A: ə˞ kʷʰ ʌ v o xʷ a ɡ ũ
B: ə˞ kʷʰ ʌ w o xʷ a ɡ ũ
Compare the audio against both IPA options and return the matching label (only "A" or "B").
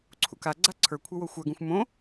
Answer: B